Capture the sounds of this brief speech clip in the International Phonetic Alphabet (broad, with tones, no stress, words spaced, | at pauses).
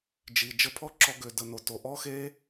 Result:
d͡ʒi˨ d͡ʒə˧pʰɔ˦ǁɔ˧ ɡø˨də˨ no˨to˨ʔɔ˦ xe˦